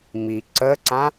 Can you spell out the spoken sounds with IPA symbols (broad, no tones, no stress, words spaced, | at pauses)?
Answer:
mi ǀəǀã